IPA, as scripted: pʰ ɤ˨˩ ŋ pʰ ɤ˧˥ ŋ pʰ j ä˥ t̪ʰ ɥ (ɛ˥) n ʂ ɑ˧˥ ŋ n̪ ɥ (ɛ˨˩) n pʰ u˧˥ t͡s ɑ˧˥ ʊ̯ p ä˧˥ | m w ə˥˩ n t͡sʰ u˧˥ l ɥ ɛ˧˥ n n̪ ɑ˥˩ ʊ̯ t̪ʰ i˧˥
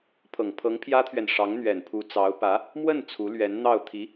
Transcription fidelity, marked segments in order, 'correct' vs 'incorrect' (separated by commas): incorrect, correct